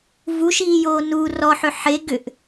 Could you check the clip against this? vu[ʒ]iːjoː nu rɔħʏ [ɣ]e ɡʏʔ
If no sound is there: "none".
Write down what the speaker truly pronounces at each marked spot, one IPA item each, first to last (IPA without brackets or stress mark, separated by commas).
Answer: ʃ, ħ